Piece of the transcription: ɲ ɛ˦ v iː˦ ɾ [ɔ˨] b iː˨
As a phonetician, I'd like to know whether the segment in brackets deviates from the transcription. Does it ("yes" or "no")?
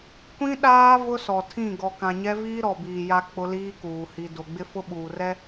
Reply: no